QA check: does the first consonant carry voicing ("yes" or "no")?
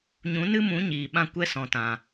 yes